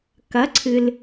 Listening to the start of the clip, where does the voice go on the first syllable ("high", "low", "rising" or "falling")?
rising